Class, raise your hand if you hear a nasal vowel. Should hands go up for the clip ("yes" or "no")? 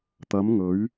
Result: no